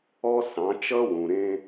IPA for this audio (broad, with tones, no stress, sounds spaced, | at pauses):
ɔ˦ s ɑ̃˨˦ t͡ʃ ʌ˦ w ũ˨ ɾ ẽ˦